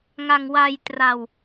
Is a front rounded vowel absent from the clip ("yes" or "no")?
yes